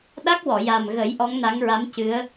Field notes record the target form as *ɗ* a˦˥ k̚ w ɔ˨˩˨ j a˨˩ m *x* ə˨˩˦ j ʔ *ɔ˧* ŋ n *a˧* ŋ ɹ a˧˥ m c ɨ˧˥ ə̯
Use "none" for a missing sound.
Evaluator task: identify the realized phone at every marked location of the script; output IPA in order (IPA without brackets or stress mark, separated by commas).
ɗ, ɣ, ɔ˧˥, a˧˥